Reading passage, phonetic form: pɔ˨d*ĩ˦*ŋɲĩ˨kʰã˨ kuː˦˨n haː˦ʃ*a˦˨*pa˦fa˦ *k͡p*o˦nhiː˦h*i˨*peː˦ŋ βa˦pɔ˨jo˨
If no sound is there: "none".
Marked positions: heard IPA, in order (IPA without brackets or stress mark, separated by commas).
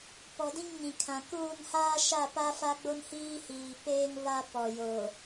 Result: ĩ˦, a˦˨, ɡ͡b, iː˨